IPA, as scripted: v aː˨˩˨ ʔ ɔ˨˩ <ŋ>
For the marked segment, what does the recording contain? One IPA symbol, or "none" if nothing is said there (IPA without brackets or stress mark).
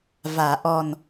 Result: n